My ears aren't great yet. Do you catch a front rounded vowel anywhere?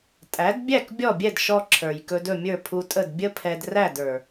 no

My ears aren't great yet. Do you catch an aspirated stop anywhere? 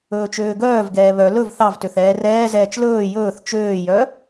no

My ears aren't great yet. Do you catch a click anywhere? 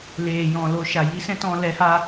no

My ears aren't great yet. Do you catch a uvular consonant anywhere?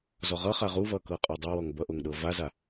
yes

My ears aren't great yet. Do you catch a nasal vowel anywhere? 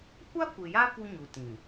yes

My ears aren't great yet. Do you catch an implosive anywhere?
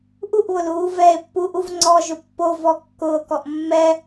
no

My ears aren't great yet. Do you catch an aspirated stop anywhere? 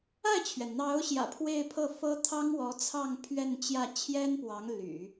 yes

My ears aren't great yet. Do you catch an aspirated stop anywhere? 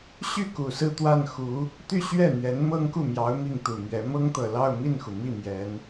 no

